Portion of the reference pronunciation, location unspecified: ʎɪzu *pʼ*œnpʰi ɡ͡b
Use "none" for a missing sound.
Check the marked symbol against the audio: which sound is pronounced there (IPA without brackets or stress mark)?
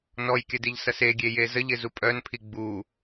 pʼ